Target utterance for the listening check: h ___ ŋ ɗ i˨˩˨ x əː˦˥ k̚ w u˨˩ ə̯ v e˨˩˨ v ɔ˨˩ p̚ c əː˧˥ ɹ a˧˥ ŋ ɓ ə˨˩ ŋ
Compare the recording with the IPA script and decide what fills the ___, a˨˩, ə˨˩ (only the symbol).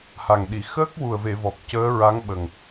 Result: a˨˩